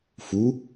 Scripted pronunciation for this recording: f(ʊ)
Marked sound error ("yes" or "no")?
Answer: yes